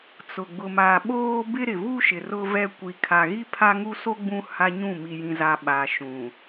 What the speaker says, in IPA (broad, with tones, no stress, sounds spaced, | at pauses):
t͡s ʊ˨ ɡ͡b ʊ˨ m a˨ ɓ oː˦ b ɪ˦ ɾ ɪ˨ v u˦ ʃ ɪ˨ r ʊ˦ v ɛ˦ kʷ i˨ kʰ a˨ ɣ i˦ pʰ a˦ ŋ u˦ s o˦ ɡ͡b ũ˦ h a˦ ɲ ũ˦˨ m i˨ j ĩ˨ z a˨ ɓ a˨ ʃ ũ˨